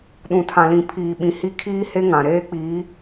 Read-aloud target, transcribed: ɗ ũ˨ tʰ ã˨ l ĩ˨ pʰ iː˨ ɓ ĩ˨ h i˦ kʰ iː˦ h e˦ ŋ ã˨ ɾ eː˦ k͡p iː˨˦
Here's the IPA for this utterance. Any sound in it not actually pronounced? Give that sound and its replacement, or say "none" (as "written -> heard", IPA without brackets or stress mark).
none